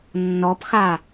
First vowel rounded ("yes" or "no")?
yes